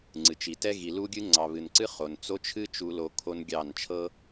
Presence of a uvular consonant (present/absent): present